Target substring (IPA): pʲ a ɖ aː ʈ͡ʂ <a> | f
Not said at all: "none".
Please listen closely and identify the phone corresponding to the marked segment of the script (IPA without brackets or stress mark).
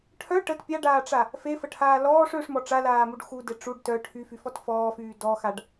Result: a